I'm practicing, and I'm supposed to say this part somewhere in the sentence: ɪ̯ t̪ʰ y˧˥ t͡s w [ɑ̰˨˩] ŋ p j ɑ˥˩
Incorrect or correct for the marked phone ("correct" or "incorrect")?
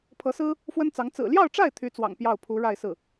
correct